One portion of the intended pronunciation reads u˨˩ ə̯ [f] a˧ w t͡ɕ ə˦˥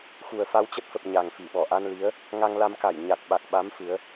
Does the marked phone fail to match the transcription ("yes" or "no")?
no